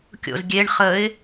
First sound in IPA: kʲ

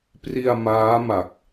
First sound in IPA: p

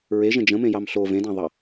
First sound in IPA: ɹ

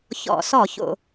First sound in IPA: ç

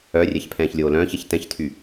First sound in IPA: œ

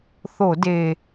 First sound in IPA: θ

